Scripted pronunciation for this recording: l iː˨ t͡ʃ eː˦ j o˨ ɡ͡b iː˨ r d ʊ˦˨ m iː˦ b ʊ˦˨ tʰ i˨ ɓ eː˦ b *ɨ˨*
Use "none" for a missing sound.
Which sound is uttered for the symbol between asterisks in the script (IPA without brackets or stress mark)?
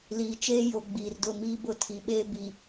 i˨